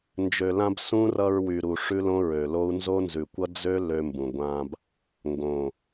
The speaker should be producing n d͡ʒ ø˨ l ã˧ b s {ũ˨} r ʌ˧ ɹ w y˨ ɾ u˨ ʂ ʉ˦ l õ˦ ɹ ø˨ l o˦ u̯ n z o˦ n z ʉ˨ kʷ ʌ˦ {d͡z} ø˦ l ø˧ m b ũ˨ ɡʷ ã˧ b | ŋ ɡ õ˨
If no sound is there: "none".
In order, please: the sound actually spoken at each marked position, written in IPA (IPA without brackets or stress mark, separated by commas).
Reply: ũ˦, d͡z